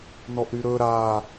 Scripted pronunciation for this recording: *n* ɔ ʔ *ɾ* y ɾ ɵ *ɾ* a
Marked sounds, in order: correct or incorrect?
correct, correct, correct

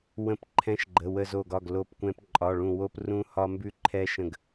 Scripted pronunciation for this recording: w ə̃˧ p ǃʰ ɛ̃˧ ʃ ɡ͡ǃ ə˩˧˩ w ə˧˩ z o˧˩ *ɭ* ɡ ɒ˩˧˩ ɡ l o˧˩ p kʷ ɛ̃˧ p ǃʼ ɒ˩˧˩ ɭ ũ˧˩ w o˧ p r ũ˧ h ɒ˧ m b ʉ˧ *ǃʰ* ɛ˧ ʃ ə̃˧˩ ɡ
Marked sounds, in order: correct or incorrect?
incorrect, correct

